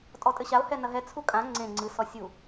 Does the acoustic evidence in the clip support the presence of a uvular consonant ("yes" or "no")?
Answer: no